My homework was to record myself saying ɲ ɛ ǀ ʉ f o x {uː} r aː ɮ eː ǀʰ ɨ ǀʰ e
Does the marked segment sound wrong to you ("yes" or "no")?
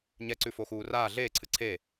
no